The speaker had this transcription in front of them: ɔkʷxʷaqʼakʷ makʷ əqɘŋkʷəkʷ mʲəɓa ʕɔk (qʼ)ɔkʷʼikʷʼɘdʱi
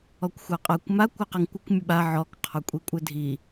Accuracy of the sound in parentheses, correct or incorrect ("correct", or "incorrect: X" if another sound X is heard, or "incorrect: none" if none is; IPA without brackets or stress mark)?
incorrect: qʰ